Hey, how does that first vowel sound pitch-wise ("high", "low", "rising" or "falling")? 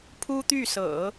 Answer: high